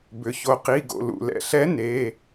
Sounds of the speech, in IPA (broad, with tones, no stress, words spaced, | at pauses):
bʏ˩ ço˩qi˩˧˩ ɡo̰˩˧˩ lṵ˩lɛ̰˩ɬɛ˧˥ ne˩˧˩